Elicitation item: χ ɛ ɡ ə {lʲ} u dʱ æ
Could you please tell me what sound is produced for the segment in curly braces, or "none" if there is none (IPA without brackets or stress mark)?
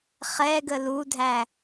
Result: l